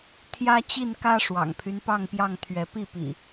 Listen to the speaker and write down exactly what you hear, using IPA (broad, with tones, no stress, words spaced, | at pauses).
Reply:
t̪ʰjä˦t͡ɕi˥˨nkä˦ ʂwɑ̰˨˩ŋpʰy˦npɑ˥˨ŋpjɑ˥˨ŋ t̪ʰɥɛ˨˦pi˥˨pḭ˨˩